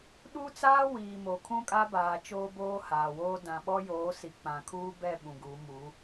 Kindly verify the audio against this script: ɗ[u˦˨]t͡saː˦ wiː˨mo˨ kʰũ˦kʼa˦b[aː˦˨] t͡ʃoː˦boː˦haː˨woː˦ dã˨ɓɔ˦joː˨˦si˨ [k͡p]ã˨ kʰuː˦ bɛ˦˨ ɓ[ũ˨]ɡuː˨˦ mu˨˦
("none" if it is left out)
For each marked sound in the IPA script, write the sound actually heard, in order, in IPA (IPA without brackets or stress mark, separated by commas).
u˦, aː˨, k͡p, ũ˨